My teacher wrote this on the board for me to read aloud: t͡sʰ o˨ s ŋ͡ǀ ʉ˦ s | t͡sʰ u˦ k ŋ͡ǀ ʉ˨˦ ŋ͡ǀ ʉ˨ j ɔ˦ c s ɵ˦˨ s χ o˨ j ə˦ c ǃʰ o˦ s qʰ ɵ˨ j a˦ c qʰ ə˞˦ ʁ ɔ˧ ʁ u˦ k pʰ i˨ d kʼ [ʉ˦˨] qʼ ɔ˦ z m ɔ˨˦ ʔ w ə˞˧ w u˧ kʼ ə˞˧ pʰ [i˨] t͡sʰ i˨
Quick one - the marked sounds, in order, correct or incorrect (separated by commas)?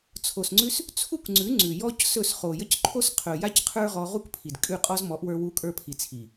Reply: correct, correct